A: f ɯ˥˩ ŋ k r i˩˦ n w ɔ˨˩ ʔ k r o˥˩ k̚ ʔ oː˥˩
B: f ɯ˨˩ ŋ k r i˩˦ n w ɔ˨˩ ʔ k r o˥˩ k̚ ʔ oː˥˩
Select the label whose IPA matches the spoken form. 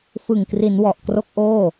B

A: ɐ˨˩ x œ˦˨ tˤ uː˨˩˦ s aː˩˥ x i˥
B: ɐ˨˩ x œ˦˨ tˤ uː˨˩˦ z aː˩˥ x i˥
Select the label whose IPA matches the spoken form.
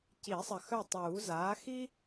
B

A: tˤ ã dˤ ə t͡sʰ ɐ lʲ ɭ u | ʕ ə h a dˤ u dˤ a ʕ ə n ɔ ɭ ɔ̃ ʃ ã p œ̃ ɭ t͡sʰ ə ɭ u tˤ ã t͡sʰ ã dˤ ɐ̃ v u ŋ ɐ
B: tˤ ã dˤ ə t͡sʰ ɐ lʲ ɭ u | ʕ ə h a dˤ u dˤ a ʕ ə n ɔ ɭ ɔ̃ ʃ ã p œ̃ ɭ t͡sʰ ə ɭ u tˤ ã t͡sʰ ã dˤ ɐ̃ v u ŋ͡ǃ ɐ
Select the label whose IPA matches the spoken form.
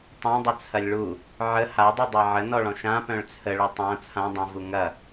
A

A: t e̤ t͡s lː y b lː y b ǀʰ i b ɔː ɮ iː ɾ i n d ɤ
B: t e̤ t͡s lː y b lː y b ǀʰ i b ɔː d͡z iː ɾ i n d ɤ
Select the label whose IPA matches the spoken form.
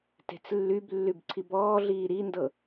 A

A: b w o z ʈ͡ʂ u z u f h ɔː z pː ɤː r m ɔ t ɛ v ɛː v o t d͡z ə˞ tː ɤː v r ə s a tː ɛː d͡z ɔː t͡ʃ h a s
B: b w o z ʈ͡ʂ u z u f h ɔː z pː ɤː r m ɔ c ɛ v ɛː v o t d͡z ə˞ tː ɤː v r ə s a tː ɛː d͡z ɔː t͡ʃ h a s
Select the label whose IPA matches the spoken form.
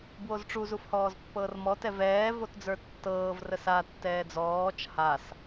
A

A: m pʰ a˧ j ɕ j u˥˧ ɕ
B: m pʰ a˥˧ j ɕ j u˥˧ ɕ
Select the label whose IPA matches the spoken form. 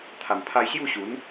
A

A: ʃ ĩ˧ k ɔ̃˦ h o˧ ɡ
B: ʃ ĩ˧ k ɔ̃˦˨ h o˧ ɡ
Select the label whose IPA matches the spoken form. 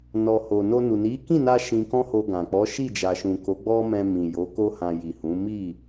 A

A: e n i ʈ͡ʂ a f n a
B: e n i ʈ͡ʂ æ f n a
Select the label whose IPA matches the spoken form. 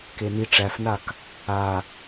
B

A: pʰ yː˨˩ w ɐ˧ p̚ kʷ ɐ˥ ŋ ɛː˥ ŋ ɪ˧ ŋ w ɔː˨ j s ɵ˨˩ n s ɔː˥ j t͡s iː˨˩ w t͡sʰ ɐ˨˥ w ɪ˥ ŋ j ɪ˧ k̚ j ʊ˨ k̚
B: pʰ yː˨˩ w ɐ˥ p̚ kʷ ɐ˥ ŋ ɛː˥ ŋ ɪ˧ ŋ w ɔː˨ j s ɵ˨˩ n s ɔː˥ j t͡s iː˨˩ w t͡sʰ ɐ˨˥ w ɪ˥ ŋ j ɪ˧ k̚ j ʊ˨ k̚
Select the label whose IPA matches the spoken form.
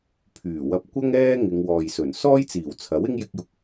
A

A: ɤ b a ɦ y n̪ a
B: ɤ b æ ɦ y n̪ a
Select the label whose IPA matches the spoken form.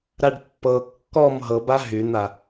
A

